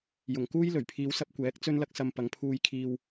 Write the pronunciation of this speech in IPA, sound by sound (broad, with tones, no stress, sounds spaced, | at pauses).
j ʊ˨˩ ŋ k uː˥ j l ɵ˨˩ ɥ pʰ iː˨˧ w s ɐ˧ p̚ kʷ ɛː˨˥ k̚ t͡s ɵ˥ n l ɐ˥ k̚ s ɐ˧ m p ɐ˨˧ ŋ pʰ uː˧ j kʰ iː˧ w